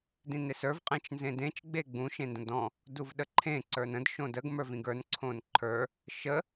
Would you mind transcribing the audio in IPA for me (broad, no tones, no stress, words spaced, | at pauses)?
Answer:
dĩnesə˞v qʼẽt͡ʃnzẽdẽt͡ʃ ɡ͡beɡ͡bũ ʃẽndə̃dɔ̃ | duvɗəǃʰẽ ǀə˞nə̃d ʃõdəɡ mə˞vĩɡə˞n ǀʰõnǃʰə˞ | ʃə